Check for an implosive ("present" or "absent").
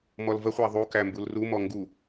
absent